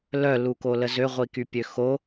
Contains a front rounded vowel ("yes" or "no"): yes